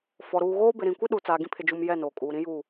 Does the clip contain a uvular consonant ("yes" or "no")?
no